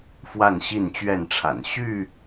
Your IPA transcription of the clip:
f w a˥˨ n ɕ i˥˨ n t͡ɕ ɥ ɛ˥˨ n ʈ͡ʂʰ a̰˨˩ n ɕ y˥˨

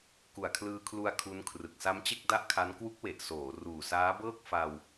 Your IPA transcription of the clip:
k u˨˩ a̯ kʰ l ɯː˧ kʰ l u˧ a̯ kʰ u˦˥ n kʰ r ɯ˨˩ k̚ s a˦˥ m t͡ɕ e˥˩ k̚ d a˥˩ ʔ kʰ a˦˥ n k w u˦˥ k̚ w e˨˩ ʔ s oː˩˦ r uː˨˩ s aː˦˥ b ɤː˥˩ k̚ f a˧ w

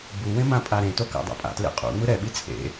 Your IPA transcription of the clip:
b u w ẽ m ã pʼ a ɾ ẽ t o k a̰ dˤ a̰ pʼ a̰ t l ḛ qʼ ṵ ŋ͡m ɯ ɾ ɛ ɓ i t͡sʼ ḛ

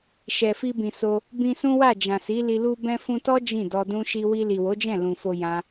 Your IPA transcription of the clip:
ʃ ɛ˨ f i˧ b ĩ˨ s o˧ | b ĩ˧ s ũ˦ w a˦˨ d͡ʒ ã˨ s i˨˦ l i˧ l u˧ b ɛ̃˧ f ũ˧ t ɔ˦ d͡ʒ ĩ˦˨ d ɔ˧ d ũ˦ ʃ i˦ w i˧ l i˨ w o˨˦ d͡ʒ ɛ̃˦˨ l ũ˨ f o˧ j ã˦

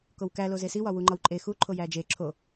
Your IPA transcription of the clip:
k o w k æ l o z e s i w ɒ w u ŋ͡ǃ ɒ w ǃʼ e x u ǃʰ o j æ d͡ʒ e ǁʰ o

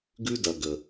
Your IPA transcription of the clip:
ɡ ʉ˦ d ɐ˨ ɡ ə˨

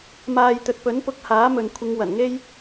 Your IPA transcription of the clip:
m aː˨ j t̪ ɵ˨ t̚ p ɵ˨˥ n p ʊ˨˥ k̚ h aː˨˥ m ɵ˨ n kʷʰ ɪ˨˧ ŋ w ɐ˨˩ n ŋ e˥ j

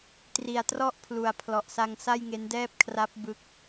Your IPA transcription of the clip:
t r i˨˩ a̯ t r ɔ˥˩ ʔ pʰ l u˨˩ a̯ pʰ l ɔ˨˩ ʔ s a˧ ŋ s a˥˩ j ŋ e˦˥ n d ɛː˥˩ p̚ kʰ r a˦˥ p̚ b ɯ˦˥ k̚

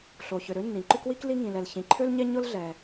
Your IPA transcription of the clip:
ɬ o˩ ç ʏ˩ ɾ ø˥ nː ĩ˩ ǃ ʏ˥ k w i˥ k l i˥ ŋ ĩ˩ l ɛ˩ l ç ĩ˩ ǃʰ ø˥ l ɲ ɛ˥ ɲ ʊ˥ l ɮ ɛ˩

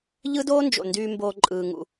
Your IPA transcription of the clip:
ʎ ɯ˥ d oː˥ n d͡ʒ o̰˩ n d yː˧ m b oː˧ ǃʼ ɯː˩ ŋ ṵ˩

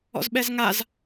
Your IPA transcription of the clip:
ɔ̰ z ɓ ɛ z ŋ a z

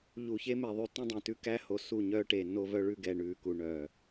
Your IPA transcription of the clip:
ʎ u˨ ç e˦ m e˨ ðˤ y˨ t ĩ˦ dˤ ĩ˨ t ʉ˦ k æ˦ h o˨ s u˦˨ ɲ œː˦ ʈ eː˨ nː o˦ v œ˦ ɭ ʉ˦ ɡ ɛ˨ ɳ ʉː˨ k u˨ ɳ œː˨

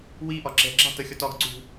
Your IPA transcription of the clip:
w i ʔ ɒ ǁ ɛ̤ ǁ ɑ̤ t ə xʲ ɒ t ɒ ɡ ǀ ṳ

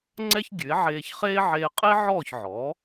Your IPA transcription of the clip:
ŋ͡ǀ ɛ˥ ç ɡʲ ʉ˩˥ e̯ ʕ eː˧ ç χ eː˥ ʕ eː˧ qʼ e˥ ʕ ɔː˥˩ ç ʕ ɔ˩˥

